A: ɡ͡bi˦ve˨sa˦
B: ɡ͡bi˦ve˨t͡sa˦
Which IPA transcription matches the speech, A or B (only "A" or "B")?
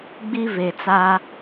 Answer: B